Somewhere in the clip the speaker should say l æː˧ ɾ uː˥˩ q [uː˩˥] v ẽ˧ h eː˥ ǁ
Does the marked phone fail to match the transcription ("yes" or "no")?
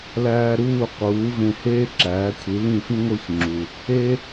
no